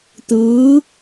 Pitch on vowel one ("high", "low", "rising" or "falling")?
rising